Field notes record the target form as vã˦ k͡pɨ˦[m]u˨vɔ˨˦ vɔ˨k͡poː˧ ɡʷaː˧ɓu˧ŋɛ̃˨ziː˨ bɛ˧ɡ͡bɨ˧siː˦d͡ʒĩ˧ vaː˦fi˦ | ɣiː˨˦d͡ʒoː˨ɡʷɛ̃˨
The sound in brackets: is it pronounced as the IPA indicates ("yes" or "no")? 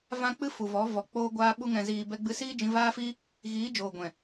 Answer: no